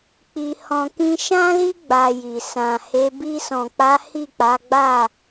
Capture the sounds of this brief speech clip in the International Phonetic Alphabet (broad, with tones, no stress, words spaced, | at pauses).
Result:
k͡pi˧hɔ̃˧ kĩ˧ʃã˦li˦ ɡ͡ba˧ji˨ sã˨he˨˦ bi˧sɔ̃˨k͡pa˨˦ hi˦˨k͡pa˨˦ɡ͡ba˦˨